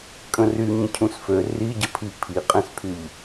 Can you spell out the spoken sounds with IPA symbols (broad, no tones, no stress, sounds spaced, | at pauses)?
kʼ ə̃ r y ɲ ə̃ cʰ ũ s f ø r i ɟ ə pʰ i pʰ i qʼ ẽ s pʰ y ʎ